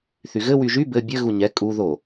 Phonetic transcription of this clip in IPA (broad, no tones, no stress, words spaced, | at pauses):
θyɣɘ wyʒy bɘ bʲɘ ɣuɲɛ kʼu ðo